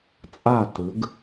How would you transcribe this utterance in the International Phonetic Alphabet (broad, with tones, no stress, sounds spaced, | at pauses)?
t͡sʼ a˥˨ t ɯ˩˥ ɡ